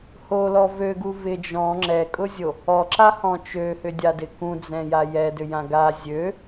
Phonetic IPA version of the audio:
holɔ vøɡu vɪ d͡ʒɔ̃ ŋ͡ǁɛkʼʊzʲo | ɔǁahɔ̃ t͡ʃøhʏdʲadɪ kũd͡zɛ̃ja jɛdʏjã ɡa zʲø

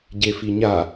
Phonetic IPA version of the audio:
ɟefiɲa

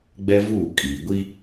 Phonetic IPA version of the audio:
ɡ͡bɛ˦vuː˦˨ kʼiː˨ ɡʷi˦

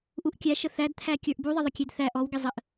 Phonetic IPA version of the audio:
ʔuʔkʲæʃə θædt̪ʰæ kʲə˞ʔbuðˤəðˤə kʲedθæ ʔɔwɡezˤəʔ

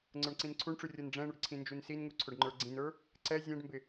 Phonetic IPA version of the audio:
ŋ͡ǀə˞ɳǀĩnǀʰuɳʈ͡ʂu rʲɤnɖ͡ʐɛ̃ɳʊɖ ǀʰĩnd͡ʒunsinŋu ǀʰʊɖŋ͡ǃə˞ɡ͡ǀĩnə˞ | ǀɛ zʲɛ̃ɖmbɪ

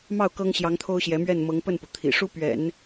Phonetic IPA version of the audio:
mɑ˥˩ʊ̯ kɤ˥ŋɕjɑ˧˥ŋt̪ʰo˥ʊ̯ɕjɛ˧˥ mɥɛ˥˩n mɤ˧˥ŋ pə˥˩npu˩t̪ʰḭ˨˩ʂu˥ pɥɛ̰˨˩˦n

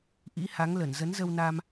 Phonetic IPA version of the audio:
ʔḭ˧˥ha˨˦ŋlə˧˩n zə˨˦nzə˧wna˧m

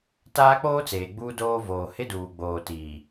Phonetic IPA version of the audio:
taː˦k͡poː˦t͡seː˨ ɡ͡buː˦doː˦ voː˨hɪ˦duː˨ ɡ͡boː˨tiː˨

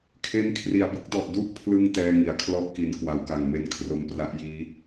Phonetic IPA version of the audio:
kʰe˦˥nkʰri˩˦a̯bɯ˥˩k̚dɔ˨˩ʔ du˥˩ʔpʰlɯ˧ŋ tɛː˥˩ŋi˨˩a̯ kʰlɔ˥˩ʔki˩˦n kwa˩˦wka˨˩ŋme˧n kʰro˧mpra˦˥ʔjiː˦˥

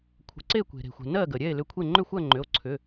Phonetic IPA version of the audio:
kʷʰə̤˩˧˩ǀe˥˨kʷe̤˩ ɾe̤˩xʷɛ̤˩ nɜ˥˨ɡə˩ ɾʲɛ˥˨e̯lʏ˧kʷʰe˥˨ ŋ͡ǃʏ˥˨xʷɜ˥˨ŋ͡ǃʏ˩˧˩o̯ ǀʰʏ˩˧˩

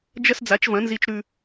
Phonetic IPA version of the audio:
d͡ʒɐ˥s d͡za˩˥t͡ʃvɐ̃˩˥nzi˧t͡ʃ ɾʉ˧

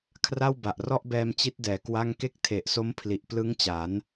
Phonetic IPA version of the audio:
kʰra˥˩wba˨˩ʔrɔ˥˩ʔbɛː˧m t͡ɕi˦˥t̚dɛː˩˦ kwa˥˩ŋ ke˥˩k̚tʰe˨˩ʔso˦˥m pʰli˨˩ʔplɯ˦˥ŋt͡ɕa˩˦n

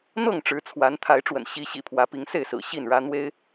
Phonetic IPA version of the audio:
n̪ɤ˥˨ŋʈ͡ʂɻ̩˨˦t͡sʰwa˨˦n t̪ʰa˨˦ɪ̯ʈ͡ʂwə̰˨˩n ɕi˨˦ɕḭ˨˩pʰwä˨˦ pi˨˦ŋse˥˨ɪ̯sɹ̩˨˩ ɕi˥˨nɻä˦ n̪we˦ɪ̯

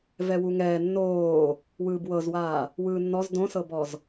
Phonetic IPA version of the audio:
vɛwuŋɛː nːoː | wɯːbwɤzwaː | wɯːnːɔz dõsɤbɔz

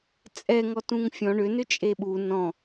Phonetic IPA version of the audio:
t͡sʼɛŋɔ tũŋfʲɔ̃ ɳʏnʏt͡ʃʼe ɓu nɔ̃

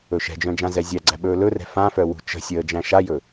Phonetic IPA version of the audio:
ɵʃɛ̤d͡ʒœ̃ d͡ʒãzɛzʲæɡ͡ǀæ ɓɵːlɵrɛ̤ fãfœ wṳt͡ʃə̤sʲəː d͡ʒæ̃ʃajɵ

